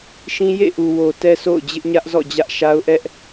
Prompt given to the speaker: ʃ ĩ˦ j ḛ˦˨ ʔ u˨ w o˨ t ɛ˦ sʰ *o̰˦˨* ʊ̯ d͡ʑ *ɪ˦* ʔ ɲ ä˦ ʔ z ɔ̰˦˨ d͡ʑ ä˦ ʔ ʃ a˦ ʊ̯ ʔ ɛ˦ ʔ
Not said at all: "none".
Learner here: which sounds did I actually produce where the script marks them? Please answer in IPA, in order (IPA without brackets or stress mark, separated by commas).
o̰˦˨, ɪ˦